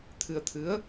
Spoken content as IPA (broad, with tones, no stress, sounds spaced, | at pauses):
t̪ʰ ɨ˧ ə̯ t̪ʰ ɨ˧˥ ə̯